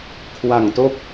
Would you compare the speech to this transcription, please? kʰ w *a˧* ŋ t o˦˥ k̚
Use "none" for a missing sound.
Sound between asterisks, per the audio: a˨˩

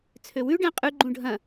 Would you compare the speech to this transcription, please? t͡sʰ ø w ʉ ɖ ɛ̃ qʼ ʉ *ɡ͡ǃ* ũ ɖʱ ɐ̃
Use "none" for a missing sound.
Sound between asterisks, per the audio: ɡ͡ǃ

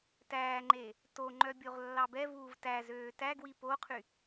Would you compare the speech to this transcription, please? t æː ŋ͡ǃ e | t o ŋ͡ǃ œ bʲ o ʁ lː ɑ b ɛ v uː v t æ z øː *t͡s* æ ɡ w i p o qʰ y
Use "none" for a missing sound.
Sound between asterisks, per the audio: t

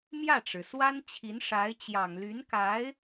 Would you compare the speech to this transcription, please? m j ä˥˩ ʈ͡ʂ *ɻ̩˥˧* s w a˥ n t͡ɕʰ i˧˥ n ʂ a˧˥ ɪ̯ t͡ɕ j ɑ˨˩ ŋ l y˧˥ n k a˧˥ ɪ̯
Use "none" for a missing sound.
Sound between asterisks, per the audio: ɻ̩˩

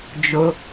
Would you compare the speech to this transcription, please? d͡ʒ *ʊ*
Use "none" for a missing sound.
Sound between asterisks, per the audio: ʊ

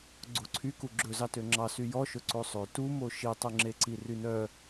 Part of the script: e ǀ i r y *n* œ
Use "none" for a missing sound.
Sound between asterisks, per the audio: n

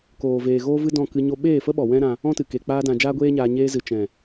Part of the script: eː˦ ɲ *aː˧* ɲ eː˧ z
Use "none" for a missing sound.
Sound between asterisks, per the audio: aː˧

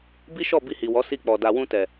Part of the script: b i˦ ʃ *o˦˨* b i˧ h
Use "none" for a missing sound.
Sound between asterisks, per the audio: ɔ˦˨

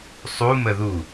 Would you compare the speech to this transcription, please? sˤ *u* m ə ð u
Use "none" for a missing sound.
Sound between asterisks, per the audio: u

